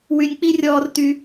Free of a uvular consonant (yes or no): yes